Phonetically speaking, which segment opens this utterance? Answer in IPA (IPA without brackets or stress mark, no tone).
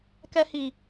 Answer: k